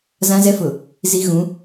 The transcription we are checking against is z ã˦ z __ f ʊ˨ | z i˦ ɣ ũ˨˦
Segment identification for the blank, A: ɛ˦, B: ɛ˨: A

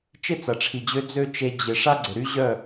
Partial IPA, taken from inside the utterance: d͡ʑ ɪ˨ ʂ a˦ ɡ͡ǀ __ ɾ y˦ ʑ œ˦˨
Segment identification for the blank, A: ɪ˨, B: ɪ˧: A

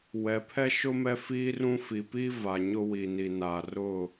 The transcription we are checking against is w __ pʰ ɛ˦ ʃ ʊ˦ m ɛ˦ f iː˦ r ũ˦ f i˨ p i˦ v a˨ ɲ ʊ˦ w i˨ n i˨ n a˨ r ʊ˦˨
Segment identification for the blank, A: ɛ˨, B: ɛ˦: A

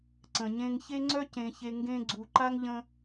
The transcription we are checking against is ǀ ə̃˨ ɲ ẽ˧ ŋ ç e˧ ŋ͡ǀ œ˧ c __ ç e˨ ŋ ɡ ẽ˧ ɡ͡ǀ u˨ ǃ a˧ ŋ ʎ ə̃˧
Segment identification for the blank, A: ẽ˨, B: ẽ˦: A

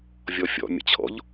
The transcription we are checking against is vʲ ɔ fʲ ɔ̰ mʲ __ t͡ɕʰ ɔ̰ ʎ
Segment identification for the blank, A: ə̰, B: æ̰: A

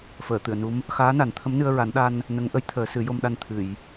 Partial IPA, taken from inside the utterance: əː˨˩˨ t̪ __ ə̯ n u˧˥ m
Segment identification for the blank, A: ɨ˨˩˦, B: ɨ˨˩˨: B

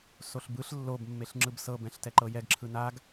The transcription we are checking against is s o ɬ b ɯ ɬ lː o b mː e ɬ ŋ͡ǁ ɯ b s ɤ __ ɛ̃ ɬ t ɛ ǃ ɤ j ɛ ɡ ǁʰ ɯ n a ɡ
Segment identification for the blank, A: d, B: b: B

